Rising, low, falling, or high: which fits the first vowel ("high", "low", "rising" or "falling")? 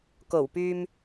low